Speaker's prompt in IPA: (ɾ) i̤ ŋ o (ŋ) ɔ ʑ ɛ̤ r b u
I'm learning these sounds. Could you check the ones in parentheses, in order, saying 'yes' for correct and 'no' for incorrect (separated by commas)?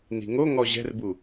no, yes